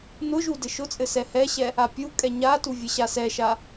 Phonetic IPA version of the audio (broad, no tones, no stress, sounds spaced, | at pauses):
n ʊ ʒ u d ɘ ʃ ʊ t͡sʼ ɘ s ɛ h ɛ ɕ ɛ | a pʲ u kʼ ɛ ɲ a t u vʲ ɘ ɕ a s ɛ ʃ a